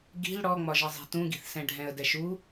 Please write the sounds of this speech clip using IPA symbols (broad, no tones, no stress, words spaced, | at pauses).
ɡi̤l ɽɔŋ͡mɒʒʌzˤi̤ tũɡi̤θsɛ̃ ɖʱɛ̃ə̯dɛʃu